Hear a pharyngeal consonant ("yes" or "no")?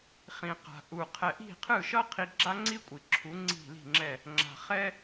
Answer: no